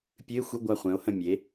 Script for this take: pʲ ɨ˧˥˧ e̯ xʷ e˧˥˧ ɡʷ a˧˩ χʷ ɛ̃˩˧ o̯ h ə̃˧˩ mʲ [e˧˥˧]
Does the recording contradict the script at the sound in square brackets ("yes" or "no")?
yes